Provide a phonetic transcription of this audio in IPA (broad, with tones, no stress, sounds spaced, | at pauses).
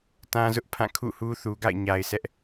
t ã˦ z ʊ˦ ʔ pʰ ã˦˨ kʰ ṵ˦˨ h u˦ θ u˨ ɡ a̰˦˨ ɪ̯ ɲ a˨ ɪ̯ sʰ ɛ˦ ʔ